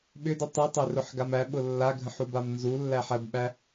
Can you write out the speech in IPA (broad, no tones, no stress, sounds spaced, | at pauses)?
ɓ ʏ d i tˤ i tˤ ø r ʊ ħ ɡ a m æ ɓ ʊ lː a ɡʱ ə̃ ħ u b a m n z u lː æ ħ æ b ɓ æ